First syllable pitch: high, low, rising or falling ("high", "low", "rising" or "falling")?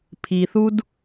low